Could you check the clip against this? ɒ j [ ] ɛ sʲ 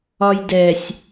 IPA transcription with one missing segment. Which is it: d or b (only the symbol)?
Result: d